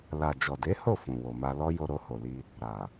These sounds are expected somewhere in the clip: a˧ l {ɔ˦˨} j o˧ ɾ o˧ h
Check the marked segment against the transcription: incorrect: ɔ˦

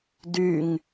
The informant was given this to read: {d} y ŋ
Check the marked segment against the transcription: correct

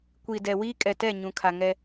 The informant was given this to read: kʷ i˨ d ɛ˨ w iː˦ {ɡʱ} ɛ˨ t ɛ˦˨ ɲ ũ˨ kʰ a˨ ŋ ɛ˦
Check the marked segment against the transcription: incorrect: kʼ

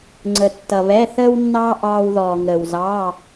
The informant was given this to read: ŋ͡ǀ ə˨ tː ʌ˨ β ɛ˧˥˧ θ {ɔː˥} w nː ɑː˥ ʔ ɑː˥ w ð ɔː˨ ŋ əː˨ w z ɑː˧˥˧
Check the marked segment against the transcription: incorrect: əː˥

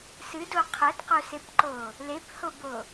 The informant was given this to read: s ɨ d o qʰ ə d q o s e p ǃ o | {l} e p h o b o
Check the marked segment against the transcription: correct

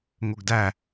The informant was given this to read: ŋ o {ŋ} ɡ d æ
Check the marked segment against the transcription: incorrect: none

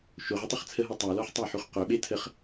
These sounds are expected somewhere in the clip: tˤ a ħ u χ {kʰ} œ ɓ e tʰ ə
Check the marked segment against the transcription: incorrect: q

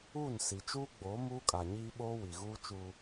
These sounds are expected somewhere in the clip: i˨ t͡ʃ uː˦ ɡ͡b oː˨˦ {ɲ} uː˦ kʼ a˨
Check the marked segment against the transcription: incorrect: m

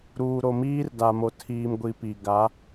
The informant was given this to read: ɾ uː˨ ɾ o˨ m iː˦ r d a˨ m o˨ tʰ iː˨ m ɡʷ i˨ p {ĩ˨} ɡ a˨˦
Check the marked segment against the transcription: incorrect: i˨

